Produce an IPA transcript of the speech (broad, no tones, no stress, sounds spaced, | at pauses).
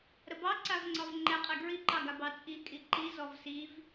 ɾ ə b ɑ ǀ a v ŋ͡ǀ ɒ v ŋ͡ǃ ɛ qʼ ɛ ɡ ɹ i ǃ ɑ ɡ a b ɑ t͡sʼ i kʼ i ǃ i z ɔ v s i v